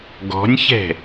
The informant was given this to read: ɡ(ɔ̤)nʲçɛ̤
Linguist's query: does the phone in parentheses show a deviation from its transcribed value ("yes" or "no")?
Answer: no